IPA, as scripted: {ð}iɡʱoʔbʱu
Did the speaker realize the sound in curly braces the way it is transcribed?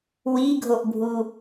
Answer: no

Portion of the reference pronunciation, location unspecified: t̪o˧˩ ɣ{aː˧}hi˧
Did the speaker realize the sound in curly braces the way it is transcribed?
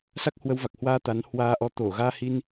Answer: yes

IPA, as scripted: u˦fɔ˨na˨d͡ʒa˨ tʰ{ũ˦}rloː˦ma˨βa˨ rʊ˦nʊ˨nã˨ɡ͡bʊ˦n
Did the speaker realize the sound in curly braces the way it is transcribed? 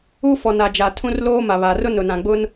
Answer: yes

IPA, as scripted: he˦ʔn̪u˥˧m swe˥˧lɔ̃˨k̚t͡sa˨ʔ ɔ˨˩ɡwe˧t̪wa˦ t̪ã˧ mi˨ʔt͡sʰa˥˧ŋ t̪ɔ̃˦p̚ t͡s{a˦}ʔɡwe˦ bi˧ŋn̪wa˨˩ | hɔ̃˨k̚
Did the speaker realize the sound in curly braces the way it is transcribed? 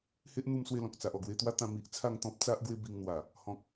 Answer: yes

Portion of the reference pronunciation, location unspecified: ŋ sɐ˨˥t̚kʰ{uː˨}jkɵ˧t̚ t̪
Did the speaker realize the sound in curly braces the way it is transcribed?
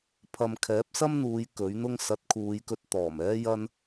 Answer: no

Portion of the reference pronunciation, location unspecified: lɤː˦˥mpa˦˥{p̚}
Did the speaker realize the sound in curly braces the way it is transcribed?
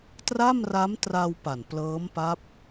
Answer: yes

